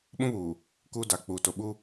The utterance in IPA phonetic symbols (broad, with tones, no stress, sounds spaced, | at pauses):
ɓ ũ˦ β uː˨ | k uː˦ d a˨ k͡p uː˨ t o˨ ɓ u˦